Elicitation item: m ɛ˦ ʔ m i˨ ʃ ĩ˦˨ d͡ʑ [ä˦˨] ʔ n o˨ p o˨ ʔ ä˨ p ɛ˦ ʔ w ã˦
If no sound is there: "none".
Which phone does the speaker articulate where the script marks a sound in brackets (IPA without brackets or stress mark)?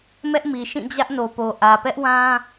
ä˦